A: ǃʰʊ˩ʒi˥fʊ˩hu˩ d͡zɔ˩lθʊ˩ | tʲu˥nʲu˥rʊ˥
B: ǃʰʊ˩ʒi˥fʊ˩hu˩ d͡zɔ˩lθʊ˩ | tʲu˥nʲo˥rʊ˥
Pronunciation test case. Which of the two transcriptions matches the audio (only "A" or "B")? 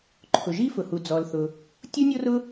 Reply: B